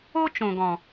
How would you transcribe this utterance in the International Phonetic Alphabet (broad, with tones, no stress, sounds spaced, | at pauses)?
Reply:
o˦ t͡ʃ õ˨ ɡ ɔ̃˨